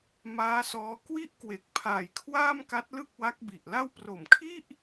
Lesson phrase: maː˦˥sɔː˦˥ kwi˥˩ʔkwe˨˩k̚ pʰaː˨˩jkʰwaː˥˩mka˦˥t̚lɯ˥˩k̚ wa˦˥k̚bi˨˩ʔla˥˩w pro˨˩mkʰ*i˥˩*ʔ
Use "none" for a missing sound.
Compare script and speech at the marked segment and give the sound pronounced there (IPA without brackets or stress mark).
i˥˩